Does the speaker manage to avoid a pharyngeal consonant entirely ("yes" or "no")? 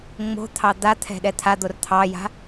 yes